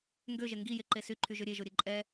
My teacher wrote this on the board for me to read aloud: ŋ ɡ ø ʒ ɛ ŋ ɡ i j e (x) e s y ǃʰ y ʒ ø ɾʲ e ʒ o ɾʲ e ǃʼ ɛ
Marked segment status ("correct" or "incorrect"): incorrect